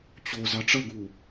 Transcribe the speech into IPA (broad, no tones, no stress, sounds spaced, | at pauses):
t͡ɕ o z ɑ ʈ͡ʂ ʌ ɡ u